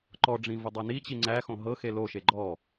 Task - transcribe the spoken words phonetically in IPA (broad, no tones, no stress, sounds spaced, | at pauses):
ǃ ɔ ɖ͡ʐ ĩ v ʊ dˤ æ n i t͡ɕ i ŋ͡ǀ æ x õ ɦ ɤ x e l o ʃ e ɡ͡ǃ ɔ